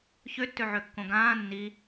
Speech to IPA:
ç ø tː ø ʕ ø kː õ ɡ ãː nː i

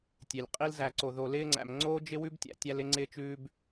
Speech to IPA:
tʲ e˨ lʲ qʼ i˦ l z æ˧ ǀ o˧ ð o˧ l ɪː˦ ŋ͡ǀ æ̰˧ m ŋ͡ǀ oː˦ d͡ʒ ɪ˦ w ʉ˦ b tʲ æ̰˧ tʲ æ˦ l ɪ˦ ŋ͡ǀ ɪː˦ t͡ʃ ʉː˦ b

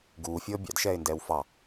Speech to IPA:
ɡ uː fʲ ɤː bʲ ɑ̰ d ʃ ɛː ɪ̯ n d ɛː w f ɑ

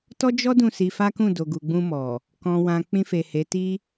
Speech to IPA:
t ɔ˦ d͡ʒ ɔ˦ d ũ˦˨ s i˧ f a˦ k ũ˦˨ d o˨ ɡ u˨ ɡ͡b ũ˧ m ɔ˨ | k ɔ̃˨ w ã˨ k͡p ĩ˧ f e˨ h e˨˦ t i˦

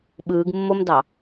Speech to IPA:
ɓ ɯː ɡ mː o m d ɑ

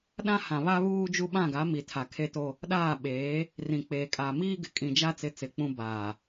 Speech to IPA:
ɗ ã˦ h ã˨ β a˦ β uː˦ d͡ʒ u˦ ɓ ã˦˨ ɡ a˨˦ m i˨ tʰ a˨ kʰ e˦ t o˦ | ɗ aː˦˨ ɓ eː˨˦ | r ĩ˨ k͡p eː˨ kʼ aː˨ m iː˦ ɡ ɪ˨ kʼ ĩ˨ d͡ʒ a˦ t͡s ɪ˨ t͡s ɪ˨ k͡p ũ˦ b aː˨

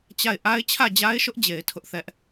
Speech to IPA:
t͡ɕ a˦˨ ɪ̯ ʔ a˦ ɪ̯ t͡ɕʰ ä˦˨ d͡ʑ a˦ ɪ̯ ʃ ʊ˦ ʔ d͡ʑ e˨ ɪ̯ tʰ ʊ˦ ʔ θ ɛ˦ ʔ

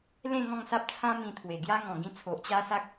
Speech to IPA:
l ẽ˥˧ ŋ ɔ̃˥˧ ŋ s a˦ p̚ t͡sʰ ã˦ m ĩ˧ t̪ʰ w e˨˩ ɡ j a˦ ŋ ɔ̃˨˩ ɡ ĩ˧ t͡sʰ o˨ ʔ t͡ɕ a˦ s a˦ k̚

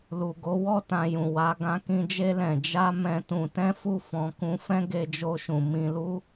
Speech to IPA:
l u˨ ɡ o˨˦ w ɔ˦˨ t ã˧ j ũ˨ w a˧ ɡ ã˧ k ĩ˧ d͡ʒ e˧ l ɛ̃˨ d͡ʒ a˧ m ɛ̃˧ t ũ˧ t ɛ̃˦ f u˦˨ f ɔ̃˧ k ũ˧ f ɛ̃˦ ɡ e˧ d͡ʒ o˧ ʃ ũ˨ m ĩ˧ l u˦

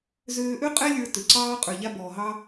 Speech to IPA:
z øː˧ ʔ ø˥ qʼ ɛ˥ lʲ ə˞˧ t ø˩ ǀ ɑː˧ qʼ ə˞˩ ʎ a˧ b ɔː˩ ɦ ɑ˧

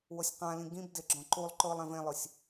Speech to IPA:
w o sʲ q ã l ĩ ɡ ĩ b d ɪ ɡ͡ǁ ɔ̃ ǃ u lˠ ǃ ʊː lˠ ɛ̃ v ẽ lˠ ʊ sʲ

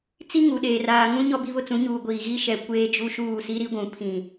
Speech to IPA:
t͡s i˦ ŋ u˨ ɗ eː˨ r aː˨ ŋ ũ˦ ɲ ɔ˦ b i˦ β ʊ˦ t͡s ũ˨˦ ɲ uː˨ ɡʷ iː˨ ɣ i˦ ʃ ɛ˨ kʷ eː˦ d͡ʒ u˦ ʃ uː˦˨ s i˦ ɾ i˦ ɡʷ ũ˨ pʰ ĩ˨

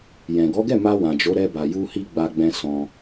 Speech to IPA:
j ɛ̃˨ ɡ ɔ˨˦ ɡ ɛ˦˨ m a˧ w ã˨ d͡ʒ o˨˦ ɾ ɛ˧ b a˨ j u˧ h i˧ ɡ͡b a˧ ɡ͡b ɛ̃˧ s ɔ̃˧

